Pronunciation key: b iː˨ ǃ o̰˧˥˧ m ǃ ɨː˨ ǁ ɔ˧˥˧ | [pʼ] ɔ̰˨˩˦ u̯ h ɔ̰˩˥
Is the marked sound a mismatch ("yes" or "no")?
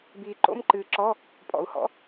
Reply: no